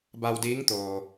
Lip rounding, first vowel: unrounded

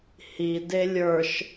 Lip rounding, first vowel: unrounded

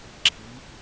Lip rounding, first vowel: unrounded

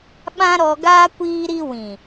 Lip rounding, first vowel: unrounded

